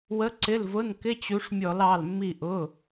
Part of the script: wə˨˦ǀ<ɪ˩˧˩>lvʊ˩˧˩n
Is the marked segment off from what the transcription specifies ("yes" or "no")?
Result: no